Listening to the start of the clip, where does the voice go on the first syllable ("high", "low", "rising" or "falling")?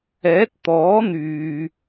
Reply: rising